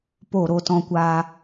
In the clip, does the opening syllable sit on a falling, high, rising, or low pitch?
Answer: falling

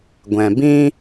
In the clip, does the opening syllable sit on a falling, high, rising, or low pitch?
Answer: low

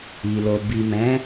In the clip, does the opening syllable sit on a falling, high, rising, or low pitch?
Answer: low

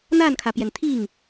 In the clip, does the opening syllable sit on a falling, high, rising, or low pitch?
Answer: falling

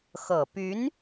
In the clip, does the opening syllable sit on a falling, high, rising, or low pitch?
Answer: low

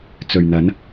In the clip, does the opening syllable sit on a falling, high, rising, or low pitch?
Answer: low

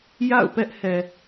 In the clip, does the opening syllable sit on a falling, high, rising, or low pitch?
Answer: falling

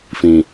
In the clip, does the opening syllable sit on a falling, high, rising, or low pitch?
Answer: low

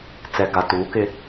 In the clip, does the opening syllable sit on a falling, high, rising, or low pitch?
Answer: low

